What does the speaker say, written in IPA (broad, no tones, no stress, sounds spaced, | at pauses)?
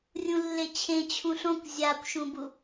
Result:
rʲ ũ lː e t͡ɕʰ ẽ t͡ɕʰ ũ ɬ õ kʷ zʲ a kʷ ʃ ũ b u